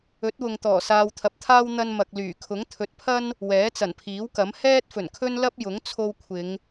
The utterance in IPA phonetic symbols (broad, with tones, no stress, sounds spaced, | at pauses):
ɵ˨˥ t̚ w ʊ˨ ŋ t̪ ɔː˨˩ s aː˨ w t̪ʰ ɐ˨ p̚ t̪ʰ aː˥ w n̪ ɐ˧ n m ɐ˨ k̚ l yː˨˩ kʰ ʊ˨˥ ŋ t̪ʰ ɵ˨˥ t̚ pʰ ɐ˥ n | w ɛː˨˥ t͡s ɐ˨˩ n pʰ iː˨˥ w k ɐ˨˥ m h ɛː˥ t̚ f ɵ˨˩ n kʰ ɵ˥ n l ɐ˥ p̚ j ʊ˨˥ ŋ t͡sʰ o˧ w kʷʰ ɪ˨˧ ŋ